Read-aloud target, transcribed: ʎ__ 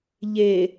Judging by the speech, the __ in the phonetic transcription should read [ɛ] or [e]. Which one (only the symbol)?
e